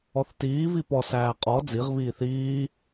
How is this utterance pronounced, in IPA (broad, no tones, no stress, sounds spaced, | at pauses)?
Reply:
ɔ θ t iː v i p ɔ s æː qʼ ɔ d͡z i ʁ β iː θ iː